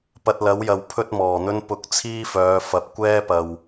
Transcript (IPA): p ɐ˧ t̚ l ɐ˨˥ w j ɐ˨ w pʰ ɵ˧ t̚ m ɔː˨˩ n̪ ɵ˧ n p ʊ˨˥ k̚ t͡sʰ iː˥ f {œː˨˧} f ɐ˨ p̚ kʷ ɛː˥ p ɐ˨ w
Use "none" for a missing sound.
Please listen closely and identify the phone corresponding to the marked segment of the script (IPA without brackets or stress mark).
œː˨˧